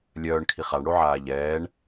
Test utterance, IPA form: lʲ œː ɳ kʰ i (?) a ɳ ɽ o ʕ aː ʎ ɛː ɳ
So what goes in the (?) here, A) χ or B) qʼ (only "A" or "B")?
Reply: A